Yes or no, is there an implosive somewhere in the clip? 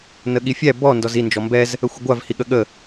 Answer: yes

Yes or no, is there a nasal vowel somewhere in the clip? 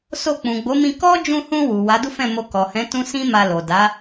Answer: yes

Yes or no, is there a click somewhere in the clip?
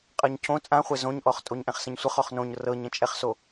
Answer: no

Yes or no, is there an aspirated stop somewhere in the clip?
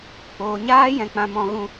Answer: no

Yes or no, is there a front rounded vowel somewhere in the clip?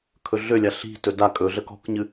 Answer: yes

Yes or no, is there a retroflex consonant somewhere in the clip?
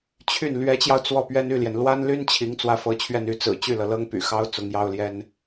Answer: no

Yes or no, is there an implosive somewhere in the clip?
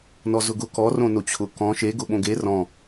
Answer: yes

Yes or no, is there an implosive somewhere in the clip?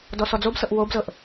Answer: no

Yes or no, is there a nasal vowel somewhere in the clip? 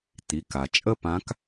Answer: yes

